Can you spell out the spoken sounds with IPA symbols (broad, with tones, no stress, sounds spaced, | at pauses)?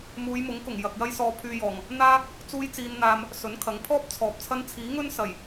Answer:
m uː˨˧ j m ʊ˨˥ ŋ k ʊ˨˩ ŋ j ɐ˨ k̚ j ɐ˥ j s ɔː˧ pʰ yː˧ j ɔː˨˩ ŋ | n̪ aː˥ | t͡s uː˥ j t͡s iː˧ n n̪ aː˧ m | s ɵ˨˥ n kʰ ɐ˨˥ ŋ pʰ ɔː˥ p̚ t͡sʰ ɔː˨ p̚ t͡sʰ ɐ˥ n t͡sʰ iː˨˥ ŋ ɵ˥ n s ɐ˨˩ j